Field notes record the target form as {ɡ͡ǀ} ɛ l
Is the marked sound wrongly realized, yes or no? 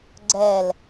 no